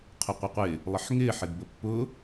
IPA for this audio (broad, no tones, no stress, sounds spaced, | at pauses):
qʰ ʊ qʷ ə qʷ ɪ | lˠ ə ħ ŋ ɪː ħ ɪ d b ə pː ʊ